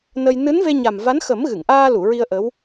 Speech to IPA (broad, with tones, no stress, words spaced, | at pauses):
nə˧j nɨ˧˥nve˧ɲa˨˩m va˧˥nxə˨˩˦m ɣɨ˨˩˨ŋʔaː˧lu˨˩˨ ɹi˧ə̯ ʔə˧˥w